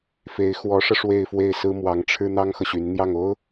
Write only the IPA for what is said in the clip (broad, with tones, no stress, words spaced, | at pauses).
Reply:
fe˧˥ɪ̯xwɔ˧˥ʂɤ˧ ʂwe˥˧ɪ̯fwe˥˩ɪ̯sɹ̩˥ mwɑ˧˥ŋʈ͡ʂʰɻ̩˥ n̪ɑ˥ŋxɤ˨ɕy˧˥nn̪jɑ˥˩ŋ o˥ʊ̯